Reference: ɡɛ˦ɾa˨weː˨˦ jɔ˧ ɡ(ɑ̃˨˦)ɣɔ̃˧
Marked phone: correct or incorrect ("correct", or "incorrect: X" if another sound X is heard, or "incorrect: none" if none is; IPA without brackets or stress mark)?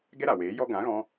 incorrect: ã˨˦